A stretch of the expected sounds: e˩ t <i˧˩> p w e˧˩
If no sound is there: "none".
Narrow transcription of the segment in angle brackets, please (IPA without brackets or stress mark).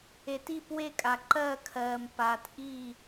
i˧˩